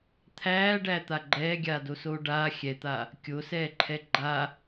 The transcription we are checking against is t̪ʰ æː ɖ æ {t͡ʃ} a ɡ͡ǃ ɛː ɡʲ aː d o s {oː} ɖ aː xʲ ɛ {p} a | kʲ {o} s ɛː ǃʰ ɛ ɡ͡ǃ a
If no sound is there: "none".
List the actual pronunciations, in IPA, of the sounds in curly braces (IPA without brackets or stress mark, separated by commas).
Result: t̪, oː, t̪, o